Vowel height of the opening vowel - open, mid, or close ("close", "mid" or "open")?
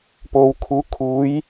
mid